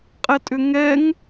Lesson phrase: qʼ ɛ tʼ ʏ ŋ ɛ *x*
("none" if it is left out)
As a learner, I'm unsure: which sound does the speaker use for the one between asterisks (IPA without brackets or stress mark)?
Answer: ŋ